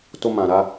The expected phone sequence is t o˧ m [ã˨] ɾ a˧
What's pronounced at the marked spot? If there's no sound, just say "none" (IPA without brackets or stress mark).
ã˨